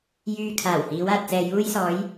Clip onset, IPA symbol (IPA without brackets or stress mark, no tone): j